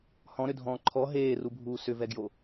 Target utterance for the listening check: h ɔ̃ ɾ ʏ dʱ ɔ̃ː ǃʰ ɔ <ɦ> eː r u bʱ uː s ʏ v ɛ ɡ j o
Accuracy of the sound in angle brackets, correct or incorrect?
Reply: correct